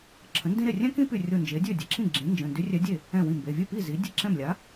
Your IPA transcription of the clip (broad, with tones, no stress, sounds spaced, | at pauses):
ǁʰ ə̃˩˥ n d ĩ˥ ɾ e˥˩ rʲ ɛ̃˥ k ĩ˥ p y˧˩ rʲ o˧˩ n d͡ʒ e˩˥ dʲ ø˥˩ dʲ ə˩˧˩ ǁʰ ĩ˥˩ ɡ͡ǁ ĩ˩˥ n d͡ʒ ə̃˩˧˩ n d y˧˥ rʲ ɛ˧˥ dʲ e˥˩ | ɛ̃˥˩ w ĩ˥˩ m b e˩˧˩ vʲ ø˥˩ p i˥˩ z i˩˥ dʲ e˥˩ ǁ ɛ̃˥˩ m lʲ a˩˥